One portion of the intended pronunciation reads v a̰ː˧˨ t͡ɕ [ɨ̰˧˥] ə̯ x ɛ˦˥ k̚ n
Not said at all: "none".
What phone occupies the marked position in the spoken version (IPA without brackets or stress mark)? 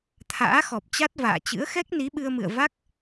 ɨ̰˧˥